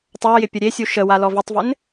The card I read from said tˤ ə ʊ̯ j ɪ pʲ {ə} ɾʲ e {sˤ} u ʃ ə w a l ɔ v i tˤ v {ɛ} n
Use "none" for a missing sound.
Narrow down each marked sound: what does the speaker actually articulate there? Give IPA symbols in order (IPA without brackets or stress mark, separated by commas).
ə, sʲ, ɪ